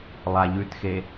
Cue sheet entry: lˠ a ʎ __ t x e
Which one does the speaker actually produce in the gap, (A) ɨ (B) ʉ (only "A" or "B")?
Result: B